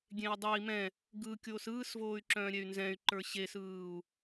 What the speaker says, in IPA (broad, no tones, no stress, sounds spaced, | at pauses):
ɡʲ ẽ i̯ dˤ œ i̯ m ɛ̃ | ɡ ɯ kʲ oː s ɯː s v oː y̯ ǁ œ̃ː ɾʲ ɛ y̯ n z ɛ̃ y̯ ǃ ə˞ ɕ e s ɯː u̯